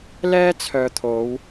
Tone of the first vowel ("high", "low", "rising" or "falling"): high